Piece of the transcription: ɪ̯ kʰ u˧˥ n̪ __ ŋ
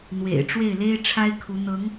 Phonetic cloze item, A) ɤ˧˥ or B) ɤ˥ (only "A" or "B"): A